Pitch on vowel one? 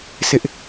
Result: high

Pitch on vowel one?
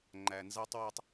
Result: low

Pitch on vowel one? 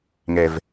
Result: low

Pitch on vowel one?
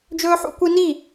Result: high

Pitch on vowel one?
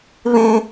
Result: low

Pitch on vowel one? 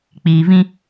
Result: low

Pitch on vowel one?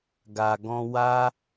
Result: low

